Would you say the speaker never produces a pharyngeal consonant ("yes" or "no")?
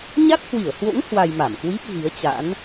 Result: yes